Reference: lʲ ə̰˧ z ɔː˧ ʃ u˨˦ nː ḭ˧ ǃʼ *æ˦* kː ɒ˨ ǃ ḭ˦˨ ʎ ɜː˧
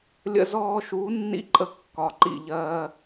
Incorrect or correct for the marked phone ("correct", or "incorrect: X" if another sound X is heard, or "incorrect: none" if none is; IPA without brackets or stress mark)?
incorrect: ə˦